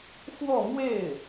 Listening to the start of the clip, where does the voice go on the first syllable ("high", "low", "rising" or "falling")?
falling